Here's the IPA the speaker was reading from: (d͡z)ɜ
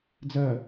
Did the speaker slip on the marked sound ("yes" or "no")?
no